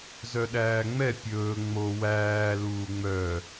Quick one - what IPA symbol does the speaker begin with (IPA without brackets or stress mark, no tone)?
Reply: z